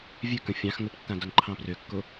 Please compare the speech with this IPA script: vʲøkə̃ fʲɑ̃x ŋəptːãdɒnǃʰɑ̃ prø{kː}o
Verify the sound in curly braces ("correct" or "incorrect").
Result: correct